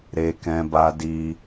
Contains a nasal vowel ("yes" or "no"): yes